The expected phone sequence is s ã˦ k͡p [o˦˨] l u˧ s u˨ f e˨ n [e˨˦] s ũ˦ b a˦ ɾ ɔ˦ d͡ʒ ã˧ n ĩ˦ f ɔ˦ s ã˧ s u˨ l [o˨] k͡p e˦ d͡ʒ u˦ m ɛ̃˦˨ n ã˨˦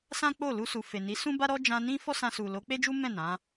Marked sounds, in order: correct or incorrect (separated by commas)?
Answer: correct, incorrect, incorrect